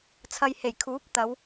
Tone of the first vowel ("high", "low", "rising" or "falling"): low